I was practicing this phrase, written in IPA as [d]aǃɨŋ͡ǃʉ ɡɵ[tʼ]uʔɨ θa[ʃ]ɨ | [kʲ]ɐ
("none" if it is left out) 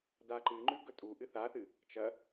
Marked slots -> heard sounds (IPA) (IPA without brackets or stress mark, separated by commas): d, tʼ, θ, t͡ʃ